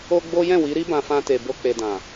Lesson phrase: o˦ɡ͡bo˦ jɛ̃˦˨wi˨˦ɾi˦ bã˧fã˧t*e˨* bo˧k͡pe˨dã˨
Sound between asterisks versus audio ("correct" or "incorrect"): correct